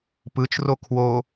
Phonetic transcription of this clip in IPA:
p ɯ t͡ʃ r o kʰ w o

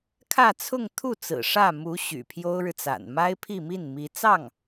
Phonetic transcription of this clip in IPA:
kʰ ä˥˧ t͡sʰ ʊ˥˧ ŋ t̪ʰ u˥˩ t͡s ɹ̩˨˩ ʂ ä˥˩ m u˧˥ ɕ y̰˨˩ pʰ j o˥ ʊ̯ ɻ ɻ̩˨ t͡s a̰˨˩ n m a˥ ɪ̯ pʰ i˥˧ m i˥˩ n m i˧˥ t͡s ɑ˥˩ ŋ

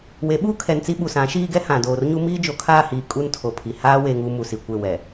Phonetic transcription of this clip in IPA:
w e˨˦ ɓ uː˦ kʰ ɛ˨ n t͡s i˦ ɓ u˨ s ã˨˦ ʃ iː˦ ɡ ɛ˦ h ã˨ d oː˨ r ɲ u˦ m iː˦ d͡ʒ o˨ kʰ aː˦˨ h iː˨ kʼ u˦ n tʰ o˨ pʰ i˨ h aː˦ w e˦ ŋ u˦ m u˨ s i˨ kʷ e˦˨ w ɛ˨

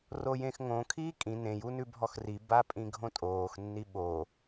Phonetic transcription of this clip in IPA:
r o j ẽ x ŋ õ kʰ iː kʼ ĩ n ẽ j u n ʉ bʱ ɔ x r i b a pʼ ĩ ɡʱ õ tʼ oː x nː i ɓ o

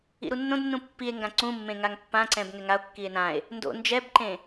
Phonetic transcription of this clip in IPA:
ḭ ɾ u nː õ d nː ũ pː i e̯ ŋ ɡ ã ǀ ũ mː ẽ ŋ a ŋ pː ã ǀ ɛ̃ b ŋ ɛ ŋ a o̯ kː i e̯ n ã e̯ | n d o̰ n d͡ʒ ɛ b ǃ ẽ

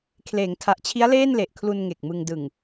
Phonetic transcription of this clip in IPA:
kʰ l eː˩˦ ŋ tʰ a˨˩ ʔ t͡ɕʰ i˦˥ a̯ l eː˥˩ n l e˨˩ ʔ kʰ l u˧ n ŋ e˨˩ k̚ m ɯ˧ ŋ d ɯ˨˩ ŋ

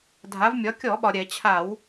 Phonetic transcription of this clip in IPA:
dʱ a˩˧ v mʲ ɒ˩˧ kʲ ɔ˧˩˧ ɓ ɒ˩ ɾʲ ɛ˧˩˧ t͡ɕʰ a˧˩˧ w

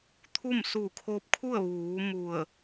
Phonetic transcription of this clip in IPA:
t̪ʰ u˥˨ m s uː˧˩ kʰ o˧ p̚ kʰ u˥˨ ə̯ ʋ uː˩˧ m u˧˩ ə̯

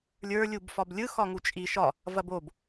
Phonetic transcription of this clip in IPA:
lʲ ə˞ lʲ u b f ɒ b lʲ ɯ x ɒ ŋ u t͡ʃʼ i ʃ ɒ | v ɐ b o b

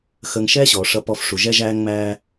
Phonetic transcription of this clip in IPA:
x əː˧ ŋ ʃ ɛː˥ ɕ ɔː˩ ʂ ʌ˧ p ɔ˧ f ʂ u˩ ʒ ɛ˥ ʒ æː˥ ŋ ŋ͡m æː˥

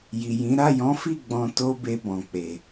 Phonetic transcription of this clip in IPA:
j i˨ j ĩ˨˦ ɾ a˦˨ j ɔ̃˨˦ f i˦˨ ɡ͡b ɔ̃˧ t o˦ b e˧ b ɔ̃˨ k͡p e˨

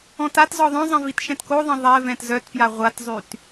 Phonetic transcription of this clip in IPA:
ɔ̃ t a t z ɔ ðˤ œ̃ zˤ ɛ̃ v i t ʃ ɛ̃ t k o ðˤ ɛ̃ ðˤ ɛ v ɛ̃ t z œ t p j a ʁʷ a t zˤ y t

